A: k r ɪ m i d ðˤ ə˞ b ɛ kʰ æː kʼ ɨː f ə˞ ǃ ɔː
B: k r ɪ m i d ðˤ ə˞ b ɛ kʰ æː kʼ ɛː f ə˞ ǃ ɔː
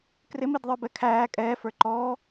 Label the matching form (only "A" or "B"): B